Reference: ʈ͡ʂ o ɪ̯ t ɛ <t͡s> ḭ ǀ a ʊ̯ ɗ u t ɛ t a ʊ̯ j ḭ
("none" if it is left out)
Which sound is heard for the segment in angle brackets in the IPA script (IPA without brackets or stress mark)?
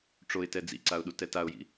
d͡z